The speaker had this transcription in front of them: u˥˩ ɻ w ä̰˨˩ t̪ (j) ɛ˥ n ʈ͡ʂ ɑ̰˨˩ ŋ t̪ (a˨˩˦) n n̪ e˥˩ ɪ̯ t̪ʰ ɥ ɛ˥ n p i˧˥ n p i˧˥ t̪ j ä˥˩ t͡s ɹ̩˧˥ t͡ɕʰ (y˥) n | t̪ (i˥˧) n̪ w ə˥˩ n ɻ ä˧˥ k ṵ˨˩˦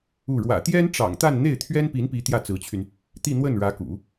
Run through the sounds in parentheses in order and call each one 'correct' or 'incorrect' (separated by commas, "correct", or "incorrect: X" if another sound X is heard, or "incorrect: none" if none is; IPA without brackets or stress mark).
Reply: correct, incorrect: a˥˧, incorrect: y˧, correct